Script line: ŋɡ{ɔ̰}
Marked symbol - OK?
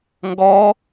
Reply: no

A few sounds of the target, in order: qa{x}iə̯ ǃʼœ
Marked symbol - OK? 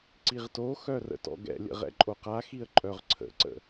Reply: yes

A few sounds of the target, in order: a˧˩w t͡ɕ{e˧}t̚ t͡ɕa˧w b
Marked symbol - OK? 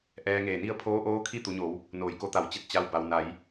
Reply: yes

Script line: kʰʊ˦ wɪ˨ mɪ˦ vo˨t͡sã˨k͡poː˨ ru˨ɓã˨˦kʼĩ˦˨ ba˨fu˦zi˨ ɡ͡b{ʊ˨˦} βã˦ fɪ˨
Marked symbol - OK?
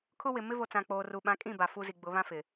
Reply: yes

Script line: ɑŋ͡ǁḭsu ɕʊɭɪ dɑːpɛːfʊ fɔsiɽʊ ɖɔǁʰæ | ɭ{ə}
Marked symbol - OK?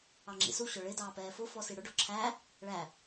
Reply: no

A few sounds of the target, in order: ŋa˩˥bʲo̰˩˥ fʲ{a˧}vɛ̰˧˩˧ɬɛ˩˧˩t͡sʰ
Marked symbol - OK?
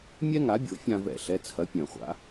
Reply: no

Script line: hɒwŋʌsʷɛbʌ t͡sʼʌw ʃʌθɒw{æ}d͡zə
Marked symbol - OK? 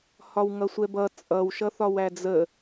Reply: yes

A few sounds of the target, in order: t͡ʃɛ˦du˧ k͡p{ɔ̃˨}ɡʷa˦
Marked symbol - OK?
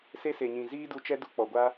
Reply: no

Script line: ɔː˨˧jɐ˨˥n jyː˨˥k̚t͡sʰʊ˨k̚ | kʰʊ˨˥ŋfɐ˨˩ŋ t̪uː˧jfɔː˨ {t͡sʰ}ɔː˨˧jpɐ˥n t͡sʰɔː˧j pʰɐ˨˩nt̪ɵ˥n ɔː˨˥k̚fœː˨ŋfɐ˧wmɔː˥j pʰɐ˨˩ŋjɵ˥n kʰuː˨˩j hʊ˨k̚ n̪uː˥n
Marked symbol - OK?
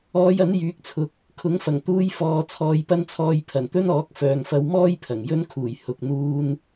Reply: yes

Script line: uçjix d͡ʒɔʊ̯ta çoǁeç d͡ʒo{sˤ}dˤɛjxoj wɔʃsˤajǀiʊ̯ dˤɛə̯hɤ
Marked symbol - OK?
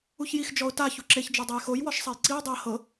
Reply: no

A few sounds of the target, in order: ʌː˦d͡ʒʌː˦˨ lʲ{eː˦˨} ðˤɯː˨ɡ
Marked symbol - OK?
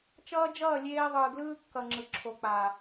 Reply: no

